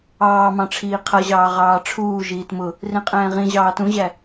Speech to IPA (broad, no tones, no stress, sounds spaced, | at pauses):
ɑː m ɑ̃ ʈ͡ʂʰ iː qʰ ʌ ʑ ɑː ʁ ɑː ʈ͡ʂʰ uː ʒ iː t m ʊ | r ĩ qʼ ɛ̃ː ʁ ĩ ʑ ɑː t ũ ʑ æ